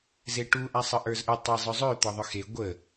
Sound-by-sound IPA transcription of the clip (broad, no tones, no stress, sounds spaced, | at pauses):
z e ʈ u ʔ a sˤ ə ʔ ə˞ z ʔ ə tˤ e zˤ œ zˤ ø t̪ ɔ ðˤ œ x e ɡʷ ə